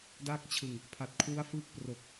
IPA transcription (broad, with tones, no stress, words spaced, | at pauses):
da˥˩k̚t͡ɕʰɯ˨˩ŋ | pʰa˨˩t̚ kʰwu˦˥a̯fɯː˦˥k̚ pro˨˩k̚